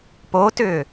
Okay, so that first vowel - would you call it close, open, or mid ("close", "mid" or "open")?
mid